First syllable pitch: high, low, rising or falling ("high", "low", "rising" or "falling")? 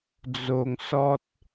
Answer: low